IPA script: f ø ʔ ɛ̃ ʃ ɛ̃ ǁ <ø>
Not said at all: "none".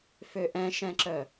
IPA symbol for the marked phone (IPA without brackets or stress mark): œ